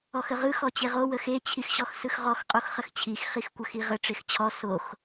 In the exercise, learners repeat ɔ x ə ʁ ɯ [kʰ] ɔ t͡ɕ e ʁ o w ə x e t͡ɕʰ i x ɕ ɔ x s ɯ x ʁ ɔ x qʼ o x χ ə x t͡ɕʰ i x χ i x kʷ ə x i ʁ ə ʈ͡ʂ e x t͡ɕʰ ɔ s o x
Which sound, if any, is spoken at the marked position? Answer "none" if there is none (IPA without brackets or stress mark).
x